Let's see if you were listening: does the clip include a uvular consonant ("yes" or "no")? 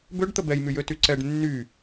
no